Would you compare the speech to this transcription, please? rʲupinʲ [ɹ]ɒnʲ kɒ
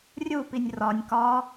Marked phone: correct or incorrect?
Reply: incorrect